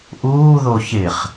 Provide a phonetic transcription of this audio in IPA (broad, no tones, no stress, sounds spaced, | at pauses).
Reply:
ʔ uː ð o ç ɪ χ